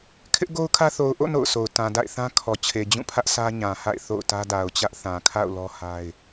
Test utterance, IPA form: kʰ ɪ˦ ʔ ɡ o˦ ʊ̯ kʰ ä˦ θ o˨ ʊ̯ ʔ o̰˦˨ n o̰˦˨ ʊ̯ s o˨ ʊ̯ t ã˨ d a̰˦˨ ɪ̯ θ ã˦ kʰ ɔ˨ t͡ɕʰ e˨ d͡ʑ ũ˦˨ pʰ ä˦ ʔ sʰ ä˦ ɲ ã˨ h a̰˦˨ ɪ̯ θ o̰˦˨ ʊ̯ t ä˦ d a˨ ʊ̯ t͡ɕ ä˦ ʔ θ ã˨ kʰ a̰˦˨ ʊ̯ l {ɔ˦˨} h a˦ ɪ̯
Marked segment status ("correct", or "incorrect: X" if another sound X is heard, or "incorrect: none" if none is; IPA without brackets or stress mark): incorrect: ɔ˦